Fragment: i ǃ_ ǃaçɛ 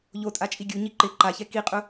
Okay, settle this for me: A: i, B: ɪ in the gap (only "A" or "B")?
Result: B